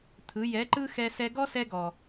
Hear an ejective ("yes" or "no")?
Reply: no